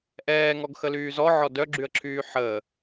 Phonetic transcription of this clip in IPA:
ʔ ɛː ŋ ɔ ɡ x ə l yː z ɔ ʕ ɔ d œ ɡ͡ǁ y ə̯ ǁʰ yː ħ ə

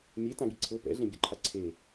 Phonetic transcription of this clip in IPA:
mʲ e t ã ɡ i ǀʰ ɤ p ɛ̰ ɮ ẽ bʲ ɔ̰ ǃʰ a ǀʰ e

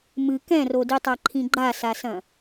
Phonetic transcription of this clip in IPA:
m ɨ k ɛ̃ r o d i tˤ a ǃʰ ĩ ɡ͡ǃ a s a s ɐ̃

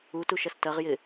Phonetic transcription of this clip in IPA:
u t u ʃ ɐ s t ɐ ʁ j ɪ

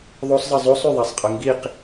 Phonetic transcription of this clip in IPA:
ðˤ o sˤ zˤ ɯ zˤ o sˤ y ðˤ æ sˤ qʼ ɯ ŋ ɡ i q

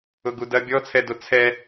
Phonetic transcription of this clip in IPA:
ʊ ɡ u d ɐ bʲ ɔ t͡sʰ ɛ d o t͡sʰ ɛ

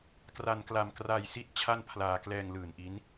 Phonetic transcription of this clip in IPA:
k r a˧ n k l a˧ m k r a˧ j s i˦˥ t̚ t͡ɕʰ a˥˩ n pʰ l aː˧ k l ɛː˧ ŋ l ɯː˨˩ n ʔ i˦˥ n

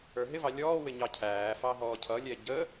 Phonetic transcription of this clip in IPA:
ə˞ ɦ ɪ v ɑ lʲ ɔː w ɪ ɲ ɑ cʰ æː f ɑ ɦ ɔː cʰ ʌ lʲ ɛ ɟ ə

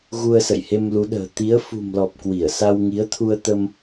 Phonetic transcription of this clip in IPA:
ɣ u˧ ə̯ s ə̰˧˨ j h e˧ m l u˨˦ ɗ ə̤ː˨˩ t̪ i˨˦ ə̯ f ṳ˨˩ m l ɔ˨˩ p̚ k w i˧˩ ə̯ s a˧ w ŋ i˨˦ ə̯ t̪ʰ u˧ ə̯ t̪ ə˧ m

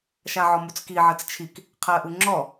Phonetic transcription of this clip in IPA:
ʃ a ʕ ɔ m u t͡s k i ʕ ɜ t͡s t͡ʃʰ i k | qʰ ɜ ʔ u ŋ͡ǁ ɔ

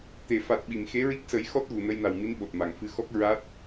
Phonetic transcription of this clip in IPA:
t̪ e˨˩˨ f a˨˩ t̚ ɓ i˨˩˨ m x e˧˥ ɹ i˦˥ k̚ s ə˨˩˦ j x ɔ˦˥ t̚ ɣ u˨˩ n ə˧ j n a˨˩ w m i˧˥ n ɓ o˨˩ t̚ m a˨˩ ŋ f ɨ˧ x ɔ˦˥ k̚ ɹ a˦˥ t̚

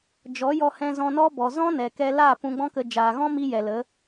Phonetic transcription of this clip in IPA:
d͡ʒ ɔ˨˦ j ɔ˧ h ɛ̃˧ z ɔ̃˧ n ɔ˦ b ɔ˨ z ɔ̃˦ n ɛ˨ k ɛ˧ l aː˦˨ p ũ˧ ɡ͡b ɔ̃˦ k ə˧ d͡ʒ aː˨ ɣ ɔ̃˦ m i˧ j ɛ˨ l ə˨˦

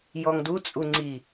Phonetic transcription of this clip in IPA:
j ɔ ŋ d u t͡sʼ u ŋ͡ǀ i

